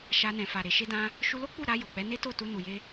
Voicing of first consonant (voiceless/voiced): voiceless